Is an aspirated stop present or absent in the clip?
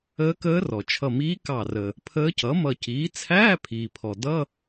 present